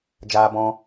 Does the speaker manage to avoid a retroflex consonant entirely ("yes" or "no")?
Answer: yes